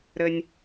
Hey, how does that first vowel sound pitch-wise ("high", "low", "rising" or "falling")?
high